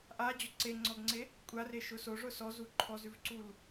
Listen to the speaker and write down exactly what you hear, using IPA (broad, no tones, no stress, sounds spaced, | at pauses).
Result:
ʔ a d͡ʑ ʊ ǀ e ŋ͡ǀ ɔ ɡ ŋ͡ǀ e | kʷʼ a r e ʃ ʊ s o ʐ ʊ s ɔ z u ǃʰ ɔ z ʉ v ǀ u l